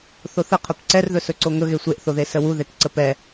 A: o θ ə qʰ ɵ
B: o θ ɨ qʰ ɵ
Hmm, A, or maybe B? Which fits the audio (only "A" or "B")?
A